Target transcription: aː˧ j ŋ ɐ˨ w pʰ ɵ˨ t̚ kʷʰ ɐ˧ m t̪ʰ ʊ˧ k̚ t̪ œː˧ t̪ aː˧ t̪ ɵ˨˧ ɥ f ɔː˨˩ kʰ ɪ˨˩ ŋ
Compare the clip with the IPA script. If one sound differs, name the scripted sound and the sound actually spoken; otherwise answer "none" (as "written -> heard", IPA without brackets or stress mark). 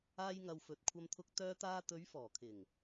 pʰ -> f